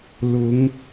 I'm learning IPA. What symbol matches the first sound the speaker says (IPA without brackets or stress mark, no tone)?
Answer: l